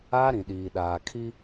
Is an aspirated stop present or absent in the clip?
present